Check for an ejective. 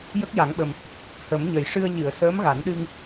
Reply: absent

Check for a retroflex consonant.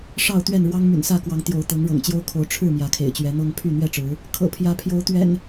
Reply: present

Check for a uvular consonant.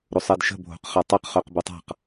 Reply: present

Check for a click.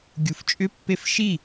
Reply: absent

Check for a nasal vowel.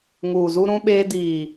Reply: present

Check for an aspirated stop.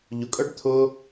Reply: present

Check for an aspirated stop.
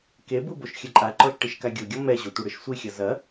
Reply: absent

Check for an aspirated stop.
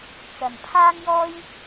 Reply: present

